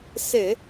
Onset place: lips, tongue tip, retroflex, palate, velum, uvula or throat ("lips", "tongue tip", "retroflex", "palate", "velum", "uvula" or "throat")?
tongue tip